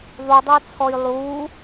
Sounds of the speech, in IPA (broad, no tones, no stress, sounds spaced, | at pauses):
ðˤ u dˤ o t͡sʰ ɔ j lˠ uː